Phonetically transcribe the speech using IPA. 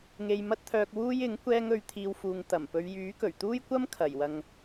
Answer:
ŋe˧jmɐ˥t̚t̪ʰœː˧k̚ wuː˥jɪ˨˥ŋ kʷɛː˥ŋɵ˧ɥt̪ʰiː˧wfuː˨ŋ t̪ɐ˨˩mpɵ˨˧ɥ jyː˨˥kɵ˨˩ɥ t̪uː˥jkʷɐ˥m kʰɐ˨˩jwɐ˨ŋ

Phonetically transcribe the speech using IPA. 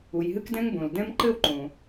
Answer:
u˩jɦɨ˥kdɛ̃˥ŋbõ˩l dɛ̃˥m ǃɘ˥wǃõ˩

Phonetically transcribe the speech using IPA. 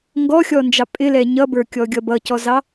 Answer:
ŋɡɔxʲɔnd͡ʒɑ pʼɪlɛ ɲʌbə˞kʲɔɡʲʌ bʌcɔzɑ

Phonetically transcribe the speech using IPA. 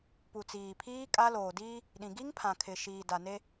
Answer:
pu˨t͡siː˨pʰiː˦ kʼa˦ loː˨diː˦ | ɗĩ˨ɡi˦ŋpʰã˨kʰɪ˨ ʃiː˨da˨ne˦

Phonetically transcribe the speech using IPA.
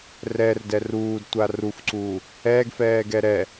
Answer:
rɛrdɛ ruːdtʷa rufǀuː | ɛːɡfɛːɡɛ ɾɛ

